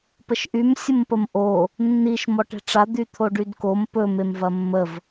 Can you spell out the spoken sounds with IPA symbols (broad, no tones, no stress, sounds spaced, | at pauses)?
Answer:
p ə ʃ ʔ y m sʲ ə m p ə m ʔ o | nː i ʃ m ɔ ʈ e̤ ʈ͡ʂ a d̪ y t̪ʰ o ɖ y d k o m p ɵ m e m v ɐ mː ə v